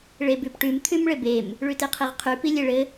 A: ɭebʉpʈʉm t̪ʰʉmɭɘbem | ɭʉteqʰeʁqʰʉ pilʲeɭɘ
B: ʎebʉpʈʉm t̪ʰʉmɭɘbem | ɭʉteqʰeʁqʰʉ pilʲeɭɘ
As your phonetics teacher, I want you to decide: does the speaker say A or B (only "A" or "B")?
A